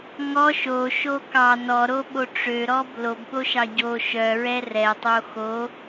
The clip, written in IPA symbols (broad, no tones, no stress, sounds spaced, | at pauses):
ŋ ɔ ʃ o ʃ o k ɑ n ɔ ɾ o ɓ o ʈ͡ʂ ø ɾ ɔ b l o b ɓ o ʃ ɑ ɟ o ʃ œ ɹ ɛ r ɛ tˤ o x o